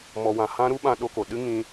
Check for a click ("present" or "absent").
absent